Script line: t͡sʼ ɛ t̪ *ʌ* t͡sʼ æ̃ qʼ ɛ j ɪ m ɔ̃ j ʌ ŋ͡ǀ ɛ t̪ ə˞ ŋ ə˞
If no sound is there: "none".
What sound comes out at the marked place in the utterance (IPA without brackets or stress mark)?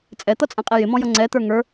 ʌ